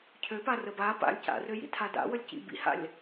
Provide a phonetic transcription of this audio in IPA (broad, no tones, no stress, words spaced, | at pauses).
cʰøpa rəba pa̰lʲ ca̰røjḭ tʰada̰ wəlʲcḭ bḭha̰lʲ